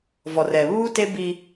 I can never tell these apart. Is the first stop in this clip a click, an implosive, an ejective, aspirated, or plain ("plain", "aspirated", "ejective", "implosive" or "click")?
plain